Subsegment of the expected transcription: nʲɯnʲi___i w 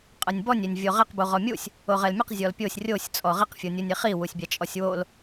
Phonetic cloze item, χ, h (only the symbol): χ